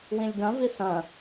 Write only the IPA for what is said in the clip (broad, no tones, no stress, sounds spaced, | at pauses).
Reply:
w ĩ lʲ ɡ ɐ̃ v i s ɐ̃